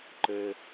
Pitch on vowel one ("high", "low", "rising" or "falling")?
low